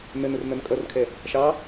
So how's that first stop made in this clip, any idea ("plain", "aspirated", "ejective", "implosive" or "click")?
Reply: ejective